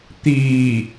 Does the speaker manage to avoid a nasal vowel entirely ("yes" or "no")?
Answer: yes